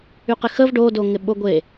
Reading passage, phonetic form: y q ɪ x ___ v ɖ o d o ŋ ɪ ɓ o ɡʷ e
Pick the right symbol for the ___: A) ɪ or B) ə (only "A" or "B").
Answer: B